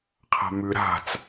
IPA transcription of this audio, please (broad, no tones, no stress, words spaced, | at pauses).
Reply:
qʰa̤mʉ ɾa̤t͡s